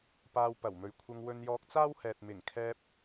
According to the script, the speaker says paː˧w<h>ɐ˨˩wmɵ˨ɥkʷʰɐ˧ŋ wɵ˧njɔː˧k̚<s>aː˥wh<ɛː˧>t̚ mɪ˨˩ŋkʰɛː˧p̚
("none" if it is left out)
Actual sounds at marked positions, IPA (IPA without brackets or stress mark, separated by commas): p, t͡s, ɛː˨